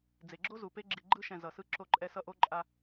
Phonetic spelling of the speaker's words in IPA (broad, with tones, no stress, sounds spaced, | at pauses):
d͡z e˩ ɡ͡ǁ o˥ z u˩ p e˥ ɡ͡ǁ i˨ ɡ͡ǃ ɯ˥ ʃ ɛ̃˨ z ʌ˩ s ɯ˥ ǁ o˦ ǃʼ ɛ˦ s ʌ˥ ʔ o˥ ǃʼ a˦